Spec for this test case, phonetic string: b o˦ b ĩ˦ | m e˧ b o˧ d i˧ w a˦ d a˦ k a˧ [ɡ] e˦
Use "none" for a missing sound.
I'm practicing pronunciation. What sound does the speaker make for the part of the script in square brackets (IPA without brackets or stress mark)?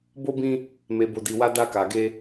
ɡ